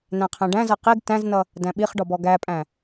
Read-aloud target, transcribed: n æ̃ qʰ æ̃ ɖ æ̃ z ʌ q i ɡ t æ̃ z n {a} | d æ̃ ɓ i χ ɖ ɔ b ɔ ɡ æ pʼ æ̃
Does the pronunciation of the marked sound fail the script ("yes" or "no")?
yes